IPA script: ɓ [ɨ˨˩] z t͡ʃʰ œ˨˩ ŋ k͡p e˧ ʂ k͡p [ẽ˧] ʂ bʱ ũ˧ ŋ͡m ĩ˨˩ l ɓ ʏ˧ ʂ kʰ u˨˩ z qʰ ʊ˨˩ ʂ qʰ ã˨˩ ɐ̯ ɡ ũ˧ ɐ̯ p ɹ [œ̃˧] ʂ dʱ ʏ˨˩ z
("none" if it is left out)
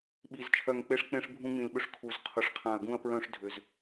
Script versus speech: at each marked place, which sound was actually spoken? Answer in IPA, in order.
i˨˩, ẽ˧, œ̃˧

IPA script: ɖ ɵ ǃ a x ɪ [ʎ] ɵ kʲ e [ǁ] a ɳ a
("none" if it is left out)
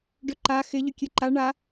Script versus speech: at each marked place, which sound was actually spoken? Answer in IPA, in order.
ʎ, ǃ

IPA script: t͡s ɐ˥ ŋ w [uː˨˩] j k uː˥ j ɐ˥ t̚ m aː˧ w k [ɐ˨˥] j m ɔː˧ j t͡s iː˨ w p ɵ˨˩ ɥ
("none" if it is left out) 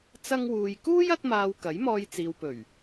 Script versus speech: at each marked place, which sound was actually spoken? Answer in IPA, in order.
uː˧, ɐ˨˥

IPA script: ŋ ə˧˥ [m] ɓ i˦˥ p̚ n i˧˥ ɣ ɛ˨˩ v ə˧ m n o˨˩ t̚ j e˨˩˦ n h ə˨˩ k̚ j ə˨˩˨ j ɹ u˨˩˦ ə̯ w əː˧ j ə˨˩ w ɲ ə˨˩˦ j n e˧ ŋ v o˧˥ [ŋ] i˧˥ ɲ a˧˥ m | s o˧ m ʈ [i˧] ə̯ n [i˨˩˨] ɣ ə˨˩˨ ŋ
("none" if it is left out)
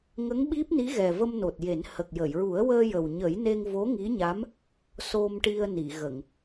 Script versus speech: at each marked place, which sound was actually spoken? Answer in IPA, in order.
ŋ, ŋ, i˧, i˨˩˨

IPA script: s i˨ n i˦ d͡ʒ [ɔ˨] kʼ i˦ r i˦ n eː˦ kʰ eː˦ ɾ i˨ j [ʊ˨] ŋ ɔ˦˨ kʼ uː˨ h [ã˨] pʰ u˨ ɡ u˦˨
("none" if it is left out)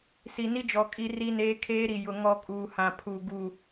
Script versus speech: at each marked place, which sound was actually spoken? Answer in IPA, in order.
ɔ˨, ʊ˨, ã˨

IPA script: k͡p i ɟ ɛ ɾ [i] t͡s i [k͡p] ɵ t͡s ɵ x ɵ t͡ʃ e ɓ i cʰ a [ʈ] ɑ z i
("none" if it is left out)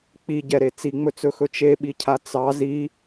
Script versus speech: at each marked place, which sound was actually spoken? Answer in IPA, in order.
e, ŋ͡m, t͡s

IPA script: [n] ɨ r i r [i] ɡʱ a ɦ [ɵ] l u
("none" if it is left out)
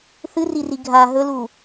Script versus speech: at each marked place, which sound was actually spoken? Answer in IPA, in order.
θ, i, ɵ

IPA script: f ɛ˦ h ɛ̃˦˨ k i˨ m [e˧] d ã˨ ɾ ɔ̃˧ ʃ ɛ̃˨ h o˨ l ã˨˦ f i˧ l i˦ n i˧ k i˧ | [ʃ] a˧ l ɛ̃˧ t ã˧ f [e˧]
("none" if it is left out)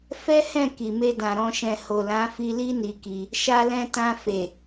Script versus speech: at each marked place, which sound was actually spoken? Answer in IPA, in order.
e˧, ʃ, e˨

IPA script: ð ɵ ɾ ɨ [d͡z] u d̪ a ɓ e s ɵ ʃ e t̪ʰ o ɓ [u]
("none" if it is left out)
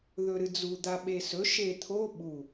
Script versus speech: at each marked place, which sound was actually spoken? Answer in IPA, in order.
d͡z, u

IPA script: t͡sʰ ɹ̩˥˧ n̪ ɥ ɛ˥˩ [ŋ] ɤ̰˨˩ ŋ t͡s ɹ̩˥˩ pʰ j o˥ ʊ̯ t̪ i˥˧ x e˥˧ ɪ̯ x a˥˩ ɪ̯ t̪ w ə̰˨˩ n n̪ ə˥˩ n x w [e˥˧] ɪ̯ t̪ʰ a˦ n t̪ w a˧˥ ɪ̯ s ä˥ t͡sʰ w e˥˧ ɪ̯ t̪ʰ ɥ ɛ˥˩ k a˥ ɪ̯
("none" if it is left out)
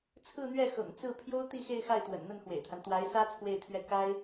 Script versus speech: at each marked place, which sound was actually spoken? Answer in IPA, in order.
x, ḛ˨˩

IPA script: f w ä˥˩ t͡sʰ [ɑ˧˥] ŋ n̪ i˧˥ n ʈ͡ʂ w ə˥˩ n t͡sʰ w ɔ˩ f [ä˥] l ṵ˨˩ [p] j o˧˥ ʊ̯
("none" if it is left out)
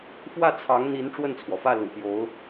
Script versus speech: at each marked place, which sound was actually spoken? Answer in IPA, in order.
ɑ˧˥, ä˥˩, p

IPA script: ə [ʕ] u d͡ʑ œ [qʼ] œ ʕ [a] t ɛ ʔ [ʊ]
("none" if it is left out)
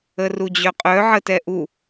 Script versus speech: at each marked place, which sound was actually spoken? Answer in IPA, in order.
r, qʼ, ə, u

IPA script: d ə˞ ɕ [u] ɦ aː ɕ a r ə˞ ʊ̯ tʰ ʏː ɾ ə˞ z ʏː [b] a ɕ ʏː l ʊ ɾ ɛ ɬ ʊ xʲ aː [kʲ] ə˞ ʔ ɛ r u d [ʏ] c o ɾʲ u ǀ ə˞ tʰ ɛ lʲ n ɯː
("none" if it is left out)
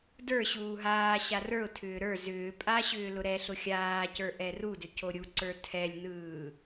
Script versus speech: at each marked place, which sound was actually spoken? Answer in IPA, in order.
uː, pʼ, c, ʏ

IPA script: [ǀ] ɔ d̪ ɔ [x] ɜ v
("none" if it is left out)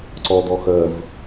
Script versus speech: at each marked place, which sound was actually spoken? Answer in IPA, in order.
ǀ, x

